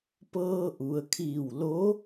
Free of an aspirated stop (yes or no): no